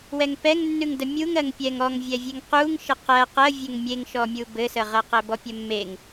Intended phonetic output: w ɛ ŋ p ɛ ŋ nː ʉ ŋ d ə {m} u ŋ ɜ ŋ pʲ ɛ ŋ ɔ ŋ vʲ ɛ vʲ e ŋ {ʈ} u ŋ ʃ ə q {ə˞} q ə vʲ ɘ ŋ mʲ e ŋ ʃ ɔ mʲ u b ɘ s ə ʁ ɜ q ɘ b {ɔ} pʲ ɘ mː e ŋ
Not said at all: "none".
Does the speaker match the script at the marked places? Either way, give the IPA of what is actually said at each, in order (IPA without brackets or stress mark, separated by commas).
mʲ, q, ɜ, ɔ